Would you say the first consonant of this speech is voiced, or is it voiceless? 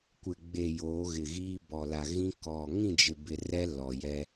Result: voiceless